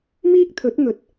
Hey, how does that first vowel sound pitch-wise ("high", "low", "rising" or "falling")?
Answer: high